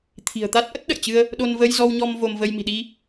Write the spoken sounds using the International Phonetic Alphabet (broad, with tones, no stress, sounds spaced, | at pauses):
t̪ʰ i̤˨˩ ə̯ t̪ a˦˥ t̚ ʔ ə˦˥ t̚ ɗ ə̰˧˨ j t͡ɕ ɨ˧ ə̯ | ɗ o˧ n v ə˧ j z ɔ˧ w ɲ ɔ˧ m v o˧ m v ə˧ j m i̤˨˩ ɗ i˧